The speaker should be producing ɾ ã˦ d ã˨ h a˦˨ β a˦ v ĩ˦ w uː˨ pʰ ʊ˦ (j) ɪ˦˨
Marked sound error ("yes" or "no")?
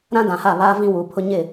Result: yes